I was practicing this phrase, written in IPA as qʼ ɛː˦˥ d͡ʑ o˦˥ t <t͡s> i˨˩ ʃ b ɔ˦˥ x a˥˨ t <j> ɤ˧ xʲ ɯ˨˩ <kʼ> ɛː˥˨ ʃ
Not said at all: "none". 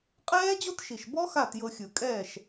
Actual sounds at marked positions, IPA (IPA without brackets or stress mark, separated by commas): ʃ, j, kʼ